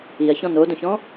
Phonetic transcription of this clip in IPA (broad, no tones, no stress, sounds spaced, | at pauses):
i ɐ̯ ç ɔ̃ n o d õ ç ɔ̃